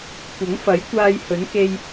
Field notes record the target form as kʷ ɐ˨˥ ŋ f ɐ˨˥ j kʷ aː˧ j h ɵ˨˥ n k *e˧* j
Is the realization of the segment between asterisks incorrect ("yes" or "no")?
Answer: no